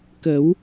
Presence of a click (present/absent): absent